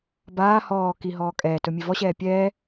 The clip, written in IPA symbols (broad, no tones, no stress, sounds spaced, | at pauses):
b aː h ɔː k i ɦ ɔː kʼ ɛː t ɵ mʲ e v ɔ ɕ ɛː pʲ ɛː